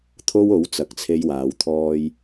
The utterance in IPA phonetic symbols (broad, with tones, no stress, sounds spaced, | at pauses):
t̪ʰ o˥ w o˨˥ w t͡s ɐ˧ k̚ t͡sʰ e˥ j w aː˨˧ w t̪ʰ ɔː˥ j